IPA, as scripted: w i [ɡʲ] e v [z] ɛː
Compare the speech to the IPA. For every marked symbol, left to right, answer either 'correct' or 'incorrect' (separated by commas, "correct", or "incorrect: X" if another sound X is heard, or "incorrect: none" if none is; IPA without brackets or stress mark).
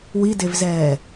incorrect: d, correct